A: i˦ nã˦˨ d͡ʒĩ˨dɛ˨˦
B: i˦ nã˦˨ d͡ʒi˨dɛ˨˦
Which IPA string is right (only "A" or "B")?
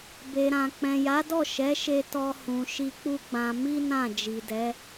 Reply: B